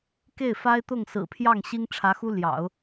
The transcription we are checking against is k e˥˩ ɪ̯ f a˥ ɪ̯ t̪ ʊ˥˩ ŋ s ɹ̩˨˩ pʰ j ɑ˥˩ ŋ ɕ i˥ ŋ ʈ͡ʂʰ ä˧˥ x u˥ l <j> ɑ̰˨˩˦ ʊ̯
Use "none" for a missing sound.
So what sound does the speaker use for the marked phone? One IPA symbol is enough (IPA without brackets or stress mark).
j